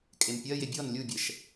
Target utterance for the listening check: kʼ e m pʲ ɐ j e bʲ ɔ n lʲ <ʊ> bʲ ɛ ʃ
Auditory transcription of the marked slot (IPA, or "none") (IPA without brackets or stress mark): u